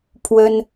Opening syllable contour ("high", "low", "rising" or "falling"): high